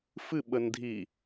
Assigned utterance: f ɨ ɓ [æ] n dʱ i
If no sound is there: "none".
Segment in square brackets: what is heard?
ə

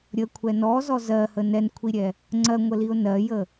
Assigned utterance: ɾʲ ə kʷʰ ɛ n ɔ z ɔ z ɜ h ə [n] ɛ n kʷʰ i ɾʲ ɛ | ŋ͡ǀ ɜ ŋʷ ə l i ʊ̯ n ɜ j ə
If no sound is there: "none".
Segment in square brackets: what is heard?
n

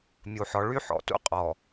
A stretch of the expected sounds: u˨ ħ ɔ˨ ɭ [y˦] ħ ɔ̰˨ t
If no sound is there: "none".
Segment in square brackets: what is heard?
y˦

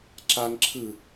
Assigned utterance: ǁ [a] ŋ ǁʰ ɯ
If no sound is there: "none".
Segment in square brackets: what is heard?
a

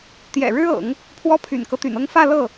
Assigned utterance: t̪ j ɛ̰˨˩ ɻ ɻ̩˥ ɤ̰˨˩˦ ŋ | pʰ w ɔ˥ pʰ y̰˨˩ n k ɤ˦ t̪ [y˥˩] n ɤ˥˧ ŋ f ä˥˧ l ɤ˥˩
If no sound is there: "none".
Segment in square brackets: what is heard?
y̰˨˩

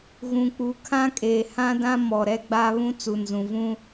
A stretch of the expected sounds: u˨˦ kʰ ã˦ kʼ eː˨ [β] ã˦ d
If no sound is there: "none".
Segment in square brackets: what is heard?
h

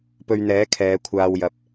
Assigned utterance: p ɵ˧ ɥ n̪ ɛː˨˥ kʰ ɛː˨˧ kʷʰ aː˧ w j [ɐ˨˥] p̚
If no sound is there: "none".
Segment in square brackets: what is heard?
ɐ˨˥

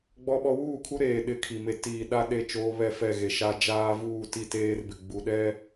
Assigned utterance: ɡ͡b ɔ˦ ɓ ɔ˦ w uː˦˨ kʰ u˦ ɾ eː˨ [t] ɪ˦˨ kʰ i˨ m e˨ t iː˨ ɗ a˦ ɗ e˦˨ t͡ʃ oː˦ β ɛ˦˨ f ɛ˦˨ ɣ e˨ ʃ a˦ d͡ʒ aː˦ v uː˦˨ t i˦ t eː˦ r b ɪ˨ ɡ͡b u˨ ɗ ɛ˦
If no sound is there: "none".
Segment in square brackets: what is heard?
ɗ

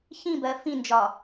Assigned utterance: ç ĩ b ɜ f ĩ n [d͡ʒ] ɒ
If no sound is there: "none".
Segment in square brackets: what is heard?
d͡ʒ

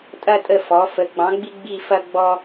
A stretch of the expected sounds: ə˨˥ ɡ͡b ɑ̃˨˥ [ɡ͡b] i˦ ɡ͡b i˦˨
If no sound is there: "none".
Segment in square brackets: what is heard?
ɡ͡b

